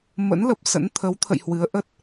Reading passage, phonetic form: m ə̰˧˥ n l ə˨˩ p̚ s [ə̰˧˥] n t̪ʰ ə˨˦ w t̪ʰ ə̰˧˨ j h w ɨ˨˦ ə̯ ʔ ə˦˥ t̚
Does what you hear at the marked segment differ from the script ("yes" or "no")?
no